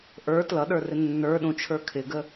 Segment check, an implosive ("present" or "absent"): present